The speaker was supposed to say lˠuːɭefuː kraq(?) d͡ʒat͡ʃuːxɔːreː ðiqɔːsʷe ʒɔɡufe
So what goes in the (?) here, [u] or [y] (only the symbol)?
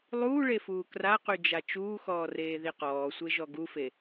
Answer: y